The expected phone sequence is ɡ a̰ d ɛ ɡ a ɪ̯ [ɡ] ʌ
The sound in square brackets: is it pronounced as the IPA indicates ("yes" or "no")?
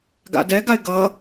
yes